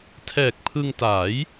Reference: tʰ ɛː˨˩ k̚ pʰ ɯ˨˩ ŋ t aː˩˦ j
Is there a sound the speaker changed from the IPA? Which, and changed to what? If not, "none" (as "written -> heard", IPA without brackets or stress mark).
ɯ˨˩ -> ɯ˧